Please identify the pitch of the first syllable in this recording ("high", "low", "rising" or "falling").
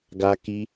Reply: high